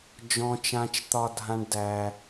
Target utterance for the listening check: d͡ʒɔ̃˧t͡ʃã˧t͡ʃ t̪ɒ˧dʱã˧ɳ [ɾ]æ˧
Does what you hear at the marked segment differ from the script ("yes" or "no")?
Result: yes